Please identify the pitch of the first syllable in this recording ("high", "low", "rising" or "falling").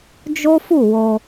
high